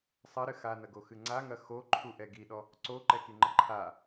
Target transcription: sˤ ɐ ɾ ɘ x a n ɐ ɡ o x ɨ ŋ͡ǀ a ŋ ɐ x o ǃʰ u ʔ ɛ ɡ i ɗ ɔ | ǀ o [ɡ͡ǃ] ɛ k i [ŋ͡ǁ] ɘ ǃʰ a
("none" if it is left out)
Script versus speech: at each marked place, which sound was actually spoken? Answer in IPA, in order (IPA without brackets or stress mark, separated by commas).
ǃ, ŋ͡ǃ